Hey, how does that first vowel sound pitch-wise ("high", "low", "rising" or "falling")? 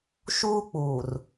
high